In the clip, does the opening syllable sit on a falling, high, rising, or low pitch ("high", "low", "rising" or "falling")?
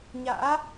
rising